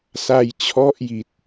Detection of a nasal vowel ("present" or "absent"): absent